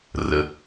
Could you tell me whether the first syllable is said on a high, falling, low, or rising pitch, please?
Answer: low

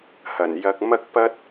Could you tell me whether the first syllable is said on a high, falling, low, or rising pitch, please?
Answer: low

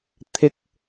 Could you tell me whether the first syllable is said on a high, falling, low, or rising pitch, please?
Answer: high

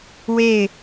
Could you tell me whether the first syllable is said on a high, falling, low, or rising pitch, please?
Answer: falling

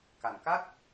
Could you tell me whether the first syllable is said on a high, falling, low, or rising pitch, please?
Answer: low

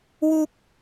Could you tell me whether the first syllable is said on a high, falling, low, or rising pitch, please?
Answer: high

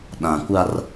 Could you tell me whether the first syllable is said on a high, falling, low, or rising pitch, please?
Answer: low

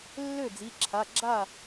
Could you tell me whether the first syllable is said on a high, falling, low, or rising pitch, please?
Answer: falling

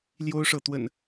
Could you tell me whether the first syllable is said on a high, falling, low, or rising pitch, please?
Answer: high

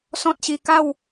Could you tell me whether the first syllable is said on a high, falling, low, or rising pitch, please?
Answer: high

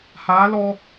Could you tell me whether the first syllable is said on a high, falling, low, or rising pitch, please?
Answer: rising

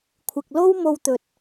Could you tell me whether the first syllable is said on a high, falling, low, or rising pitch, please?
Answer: low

